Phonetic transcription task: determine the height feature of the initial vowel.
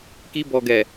high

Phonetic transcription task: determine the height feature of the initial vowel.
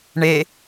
mid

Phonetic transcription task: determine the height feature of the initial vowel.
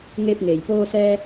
mid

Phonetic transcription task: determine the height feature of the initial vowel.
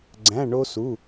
low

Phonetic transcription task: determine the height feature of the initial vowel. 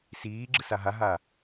high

